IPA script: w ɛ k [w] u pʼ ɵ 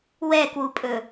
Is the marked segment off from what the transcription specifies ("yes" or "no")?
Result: no